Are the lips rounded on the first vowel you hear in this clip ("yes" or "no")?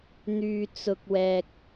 yes